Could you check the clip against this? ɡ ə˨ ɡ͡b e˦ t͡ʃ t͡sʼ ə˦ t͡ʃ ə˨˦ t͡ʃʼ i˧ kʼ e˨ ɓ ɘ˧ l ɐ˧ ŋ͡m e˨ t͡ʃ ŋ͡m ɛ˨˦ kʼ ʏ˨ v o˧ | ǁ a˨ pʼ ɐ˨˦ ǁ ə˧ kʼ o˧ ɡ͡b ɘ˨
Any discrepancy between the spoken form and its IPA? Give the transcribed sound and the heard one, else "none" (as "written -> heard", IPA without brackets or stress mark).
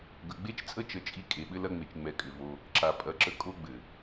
none